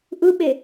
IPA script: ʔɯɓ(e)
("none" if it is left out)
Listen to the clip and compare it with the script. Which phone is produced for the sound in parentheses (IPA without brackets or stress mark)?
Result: e